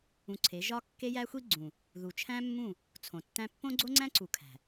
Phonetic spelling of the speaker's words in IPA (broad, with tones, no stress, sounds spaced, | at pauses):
ũ˧ ǀʰ e˨˦ ʒ ɒ˦ kː e˦ j æ˦ xʷ i˦ ɡ͡ǀ ũ˨ | ð u˧ t͡ʃʰ æ̃˦ mː ũ˦˨ | t͡sʰ õ˨ tː æ̃˦ pː õ˦ ɡ͡ǀ o˦ ŋ͡ǀ æ̃˦ ǀ u˨ kʰ æ̤˨